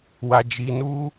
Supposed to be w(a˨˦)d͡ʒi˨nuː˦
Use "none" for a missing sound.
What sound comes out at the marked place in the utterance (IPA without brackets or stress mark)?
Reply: a˨